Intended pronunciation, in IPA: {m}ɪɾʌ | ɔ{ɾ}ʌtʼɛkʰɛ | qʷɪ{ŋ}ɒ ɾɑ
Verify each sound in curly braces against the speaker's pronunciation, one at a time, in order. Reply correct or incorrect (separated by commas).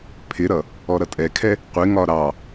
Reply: incorrect, correct, correct